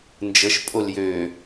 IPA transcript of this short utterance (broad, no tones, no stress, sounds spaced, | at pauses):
n d͡ʒ ə ʃ pʼ o l j ø